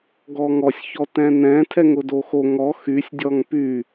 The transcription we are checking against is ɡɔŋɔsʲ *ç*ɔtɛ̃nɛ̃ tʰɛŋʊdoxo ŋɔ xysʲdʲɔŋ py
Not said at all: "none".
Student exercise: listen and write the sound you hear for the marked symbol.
ç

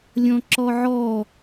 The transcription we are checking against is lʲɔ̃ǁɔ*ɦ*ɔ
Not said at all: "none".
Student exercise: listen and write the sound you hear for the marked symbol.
ʕ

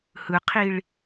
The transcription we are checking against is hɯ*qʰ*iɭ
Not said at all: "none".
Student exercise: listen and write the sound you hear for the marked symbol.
qʰ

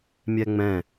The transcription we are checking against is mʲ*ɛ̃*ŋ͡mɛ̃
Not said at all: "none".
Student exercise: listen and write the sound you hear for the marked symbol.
ɛ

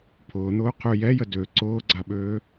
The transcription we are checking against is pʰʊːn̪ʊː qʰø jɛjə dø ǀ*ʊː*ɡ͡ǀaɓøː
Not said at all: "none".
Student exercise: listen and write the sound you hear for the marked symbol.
ʊː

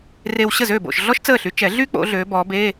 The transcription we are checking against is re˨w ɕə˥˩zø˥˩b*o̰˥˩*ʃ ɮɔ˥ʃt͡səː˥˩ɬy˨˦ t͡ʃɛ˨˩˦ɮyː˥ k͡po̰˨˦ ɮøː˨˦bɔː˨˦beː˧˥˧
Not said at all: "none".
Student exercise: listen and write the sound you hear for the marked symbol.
o̰˥˩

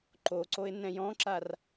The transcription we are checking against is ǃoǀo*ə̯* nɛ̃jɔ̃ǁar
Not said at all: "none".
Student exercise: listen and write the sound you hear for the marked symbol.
ɪ̯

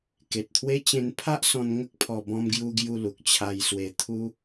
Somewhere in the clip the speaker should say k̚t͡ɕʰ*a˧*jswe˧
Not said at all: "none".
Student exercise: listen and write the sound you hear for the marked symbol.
a˧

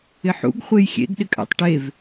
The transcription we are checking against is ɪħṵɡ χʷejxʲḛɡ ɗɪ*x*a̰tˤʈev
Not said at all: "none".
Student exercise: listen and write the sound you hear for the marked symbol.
kʼ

